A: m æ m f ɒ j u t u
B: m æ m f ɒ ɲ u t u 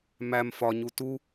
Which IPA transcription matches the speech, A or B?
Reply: B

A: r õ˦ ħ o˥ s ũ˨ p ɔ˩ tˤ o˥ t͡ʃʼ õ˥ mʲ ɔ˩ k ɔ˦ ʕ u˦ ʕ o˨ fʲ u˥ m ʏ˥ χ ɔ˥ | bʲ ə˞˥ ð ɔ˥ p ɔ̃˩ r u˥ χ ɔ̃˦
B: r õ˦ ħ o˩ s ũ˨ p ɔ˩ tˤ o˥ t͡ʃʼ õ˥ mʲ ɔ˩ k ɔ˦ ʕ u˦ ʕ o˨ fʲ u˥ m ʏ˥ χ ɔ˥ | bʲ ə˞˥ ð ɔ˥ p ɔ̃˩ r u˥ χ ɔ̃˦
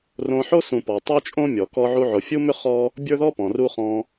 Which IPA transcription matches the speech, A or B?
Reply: A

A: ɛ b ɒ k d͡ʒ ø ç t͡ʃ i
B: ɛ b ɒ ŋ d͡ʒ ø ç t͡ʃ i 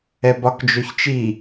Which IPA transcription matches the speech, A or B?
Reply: A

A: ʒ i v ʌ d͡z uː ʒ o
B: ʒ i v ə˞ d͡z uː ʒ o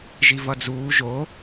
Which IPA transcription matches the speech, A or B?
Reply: A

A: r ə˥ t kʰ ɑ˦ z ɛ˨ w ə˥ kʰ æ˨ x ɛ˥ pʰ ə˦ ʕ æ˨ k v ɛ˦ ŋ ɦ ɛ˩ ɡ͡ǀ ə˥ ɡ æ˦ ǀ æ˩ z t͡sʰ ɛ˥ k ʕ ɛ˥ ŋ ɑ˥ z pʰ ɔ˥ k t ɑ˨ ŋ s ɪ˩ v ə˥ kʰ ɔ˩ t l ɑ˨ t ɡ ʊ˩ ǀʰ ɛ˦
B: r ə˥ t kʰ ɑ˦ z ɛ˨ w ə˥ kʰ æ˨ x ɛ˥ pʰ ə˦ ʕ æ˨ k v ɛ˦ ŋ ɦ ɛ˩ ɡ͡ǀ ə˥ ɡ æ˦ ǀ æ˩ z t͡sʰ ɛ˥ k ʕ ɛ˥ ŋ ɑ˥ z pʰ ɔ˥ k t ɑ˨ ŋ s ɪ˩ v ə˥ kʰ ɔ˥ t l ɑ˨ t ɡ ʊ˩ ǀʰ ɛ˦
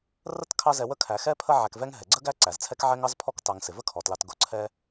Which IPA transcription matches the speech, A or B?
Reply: A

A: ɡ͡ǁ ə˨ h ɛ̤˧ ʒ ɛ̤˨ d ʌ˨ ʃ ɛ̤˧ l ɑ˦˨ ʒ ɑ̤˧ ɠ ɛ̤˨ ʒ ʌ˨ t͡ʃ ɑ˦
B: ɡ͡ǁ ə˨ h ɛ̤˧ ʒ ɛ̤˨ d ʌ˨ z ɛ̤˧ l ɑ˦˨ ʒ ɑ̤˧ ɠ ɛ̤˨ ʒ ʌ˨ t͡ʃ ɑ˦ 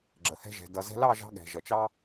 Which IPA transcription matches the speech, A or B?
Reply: B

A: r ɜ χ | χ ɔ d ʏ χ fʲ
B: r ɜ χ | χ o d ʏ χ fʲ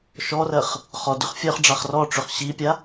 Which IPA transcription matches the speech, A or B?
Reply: A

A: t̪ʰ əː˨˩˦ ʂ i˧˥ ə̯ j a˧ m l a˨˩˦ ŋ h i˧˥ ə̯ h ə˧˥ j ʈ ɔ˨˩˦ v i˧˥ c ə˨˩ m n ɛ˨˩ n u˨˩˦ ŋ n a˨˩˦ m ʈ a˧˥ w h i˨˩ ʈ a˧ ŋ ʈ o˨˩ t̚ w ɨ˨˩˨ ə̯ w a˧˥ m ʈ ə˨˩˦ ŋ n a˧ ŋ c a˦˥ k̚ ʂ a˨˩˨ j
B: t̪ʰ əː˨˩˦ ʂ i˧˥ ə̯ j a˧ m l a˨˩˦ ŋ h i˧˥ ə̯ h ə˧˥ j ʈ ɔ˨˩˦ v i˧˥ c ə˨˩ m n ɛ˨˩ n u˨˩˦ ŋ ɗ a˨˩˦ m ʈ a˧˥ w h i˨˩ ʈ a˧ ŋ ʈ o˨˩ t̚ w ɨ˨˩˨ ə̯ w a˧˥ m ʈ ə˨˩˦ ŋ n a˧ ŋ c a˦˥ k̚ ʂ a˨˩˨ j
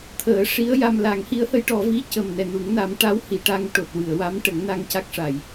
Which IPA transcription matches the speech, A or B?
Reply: A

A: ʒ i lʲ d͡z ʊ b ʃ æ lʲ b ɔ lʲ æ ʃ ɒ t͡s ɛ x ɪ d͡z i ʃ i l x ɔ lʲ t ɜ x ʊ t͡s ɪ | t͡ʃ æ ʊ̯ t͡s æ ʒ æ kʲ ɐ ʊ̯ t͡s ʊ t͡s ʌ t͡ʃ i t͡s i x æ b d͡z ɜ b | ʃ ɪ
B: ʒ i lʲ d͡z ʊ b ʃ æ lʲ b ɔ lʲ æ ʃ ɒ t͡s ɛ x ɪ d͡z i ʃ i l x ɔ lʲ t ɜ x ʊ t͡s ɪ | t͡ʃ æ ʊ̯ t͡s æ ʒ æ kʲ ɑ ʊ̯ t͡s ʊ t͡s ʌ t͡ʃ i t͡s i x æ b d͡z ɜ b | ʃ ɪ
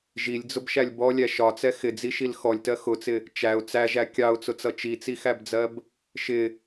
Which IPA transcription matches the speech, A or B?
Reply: B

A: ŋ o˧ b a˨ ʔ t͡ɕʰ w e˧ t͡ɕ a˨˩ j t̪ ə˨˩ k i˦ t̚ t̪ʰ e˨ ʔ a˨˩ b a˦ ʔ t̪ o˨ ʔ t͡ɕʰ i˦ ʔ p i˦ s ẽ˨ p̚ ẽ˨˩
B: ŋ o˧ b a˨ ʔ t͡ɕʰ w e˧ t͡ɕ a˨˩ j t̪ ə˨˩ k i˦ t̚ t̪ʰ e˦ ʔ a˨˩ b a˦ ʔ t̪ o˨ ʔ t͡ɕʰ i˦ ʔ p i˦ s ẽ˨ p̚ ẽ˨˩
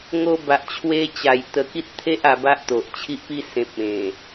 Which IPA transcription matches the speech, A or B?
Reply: B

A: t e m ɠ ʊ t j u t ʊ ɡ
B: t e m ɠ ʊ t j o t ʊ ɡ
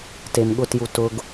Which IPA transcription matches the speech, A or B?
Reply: A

